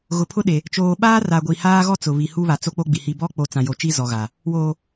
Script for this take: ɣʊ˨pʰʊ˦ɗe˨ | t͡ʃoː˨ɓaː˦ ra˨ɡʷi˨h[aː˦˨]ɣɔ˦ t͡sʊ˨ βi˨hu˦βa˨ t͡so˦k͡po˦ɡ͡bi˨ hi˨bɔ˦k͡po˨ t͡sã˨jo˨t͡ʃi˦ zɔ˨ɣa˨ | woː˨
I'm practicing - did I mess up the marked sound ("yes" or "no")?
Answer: yes